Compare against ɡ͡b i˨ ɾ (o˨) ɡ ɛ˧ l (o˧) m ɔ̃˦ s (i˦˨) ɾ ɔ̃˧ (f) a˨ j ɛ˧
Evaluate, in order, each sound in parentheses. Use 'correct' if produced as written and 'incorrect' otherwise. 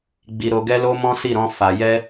correct, correct, correct, correct

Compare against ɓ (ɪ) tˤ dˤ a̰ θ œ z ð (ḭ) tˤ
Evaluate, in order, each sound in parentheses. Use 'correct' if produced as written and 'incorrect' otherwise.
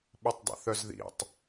incorrect, correct

